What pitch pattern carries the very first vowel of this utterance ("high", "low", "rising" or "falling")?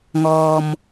low